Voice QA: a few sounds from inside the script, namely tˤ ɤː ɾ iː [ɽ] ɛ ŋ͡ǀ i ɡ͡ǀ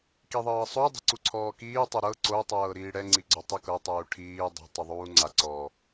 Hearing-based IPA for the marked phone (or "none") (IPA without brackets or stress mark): ɽ